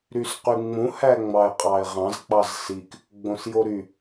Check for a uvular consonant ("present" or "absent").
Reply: present